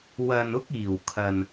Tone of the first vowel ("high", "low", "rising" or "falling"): low